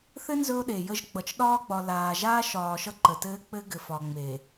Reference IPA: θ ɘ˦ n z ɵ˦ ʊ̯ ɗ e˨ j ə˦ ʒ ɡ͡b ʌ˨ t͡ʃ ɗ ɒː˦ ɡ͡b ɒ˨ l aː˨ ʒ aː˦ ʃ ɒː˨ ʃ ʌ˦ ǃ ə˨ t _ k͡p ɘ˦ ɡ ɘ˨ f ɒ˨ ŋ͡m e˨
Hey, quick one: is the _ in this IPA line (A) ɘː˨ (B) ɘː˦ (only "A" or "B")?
B